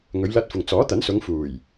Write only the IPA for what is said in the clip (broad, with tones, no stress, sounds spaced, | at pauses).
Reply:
ŋ ɵ˨˧ ɥ l ɐ˧ t̚ f ʊ˨ ŋ t͡s ɔː˨˥ t̪ ɐ˨˥ n s ʊ˨˧ ŋ f uː˨˩ j